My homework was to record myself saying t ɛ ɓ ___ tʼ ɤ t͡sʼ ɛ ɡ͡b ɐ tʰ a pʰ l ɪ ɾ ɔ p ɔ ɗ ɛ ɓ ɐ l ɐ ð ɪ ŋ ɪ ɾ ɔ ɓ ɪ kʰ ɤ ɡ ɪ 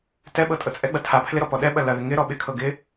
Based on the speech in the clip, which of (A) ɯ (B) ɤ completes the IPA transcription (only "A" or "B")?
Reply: B